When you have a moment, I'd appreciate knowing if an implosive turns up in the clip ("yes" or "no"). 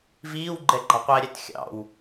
no